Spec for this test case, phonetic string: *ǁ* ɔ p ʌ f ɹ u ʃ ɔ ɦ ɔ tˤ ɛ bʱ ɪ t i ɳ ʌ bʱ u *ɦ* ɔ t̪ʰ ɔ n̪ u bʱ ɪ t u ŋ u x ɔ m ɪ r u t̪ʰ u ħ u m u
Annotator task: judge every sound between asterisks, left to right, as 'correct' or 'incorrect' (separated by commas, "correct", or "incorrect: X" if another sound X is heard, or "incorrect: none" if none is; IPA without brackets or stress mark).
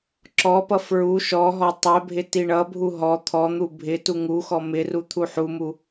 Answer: correct, correct